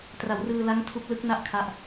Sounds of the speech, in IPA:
tra˩˦wrɯː˧la˦˥ŋ tʰu˦˥k̚lɯ˦˥k̚na˥˩ʔ kʰa˦˥ʔ

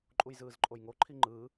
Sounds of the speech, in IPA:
ǃʼujzɯːzǃʼojŋo ǃʰiŋ͡ǃɯː

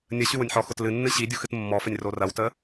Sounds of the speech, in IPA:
nʲə ɕywʊnʲħɔxʊt lɨnːɨ ɕidʲux ɨtmːɔfənʲ rorɐwtə

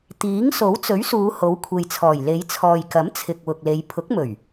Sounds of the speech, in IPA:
t̪iː˨˥ŋ so˨˥wt͡sɵ˨˥ɥsuː˨˧ ho˨˥wkʷʰe˨jt͡sʰɔː˨˩j le˨˧jt͡sʰɔː˨jkɐ˨˥m t͡sʰɪ˨k̚wʊ˨k̚le˨˧j pʰʊ˨˥k̚mɵ˨˩ɥ

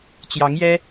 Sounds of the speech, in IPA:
t͡ɕjɑ˧˥ŋjɛ˥

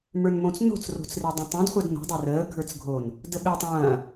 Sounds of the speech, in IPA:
mə˞nmõt͡sno̤t͡s ro̤t͡sredˤõtˤõd χʷədno̤ dˤerəː ɡʱə˞t͡sɡʱon | dəɓe tˤɐ̃ː

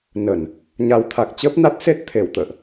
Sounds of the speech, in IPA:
nə˧˩˨n | ɲa˨˦wt̪ʰa˨˩k̚ t͡ɕəː˦˥p̚na˦˥t̚se˦˥t̚ t̪ʰe˧˩wt̪ə̰ː˧˨ʔ

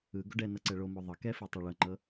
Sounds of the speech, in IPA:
ɯ ɡoɖɛnɤ ǀɛɭomo ðˤɤ kɛfɯ tˤɛɭɤŋ͡ǃɤ

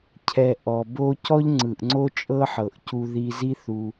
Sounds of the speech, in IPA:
cʰɛ˨ ʔɔ˨bo˦ cɔ˦ʎŋ͡ǀɯ˨ʔŋ͡ǀo˦ t͡ʃʼɤ˦ħɤ˨ʔcu˧ ði˧zi˦θu˧

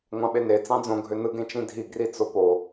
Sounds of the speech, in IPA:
ŋʷɑ̃ɓene t͡sɑ̃d͡zõ ɡʱønɯɡ ẽt͡ʃĩdʱi ɡrit͡sopo

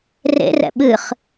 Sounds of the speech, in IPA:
rḛrɛ̰ ɓɨχ

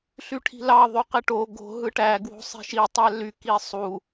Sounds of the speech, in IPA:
ɬyʈʰi̤lɑ ðˤyqeʈo ɡo̤ ɦɯʈæ ɡwo̤sˤi̤ʃi tˤæly kisˤu

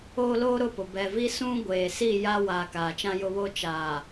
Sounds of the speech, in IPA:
oː˦loː˦ɾʊ˦˨pʊ˨ bɛ˨ vi˦sũ˦ ɡʷeː˨si˦˨ ja˦ waː˨ kaː˨t͡ʃã˦jʊ˦βo˦ t͡ʃaː˨

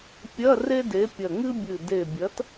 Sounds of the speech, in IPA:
pʲɐ˧˥˧ re˥de˨˥pʲɐ˧˩ ŋɨ˥bʲɨ˧˩ de˧˩bʲɐ˨˥t

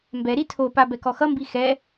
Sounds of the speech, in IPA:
mbɛɾi tʰopa bɛkɔxʌmbi xɛ

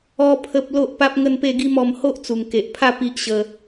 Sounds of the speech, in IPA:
ɔ˦ pʰə˦p̚ lo˦ʔpa˦p̚ ŋə˥˧npe˥˧ɡi˦mɔ˧m ho˦ʔt͡su˨˩ŋke˨ʔpʰa˥˧ pi˦ʔɕə˧

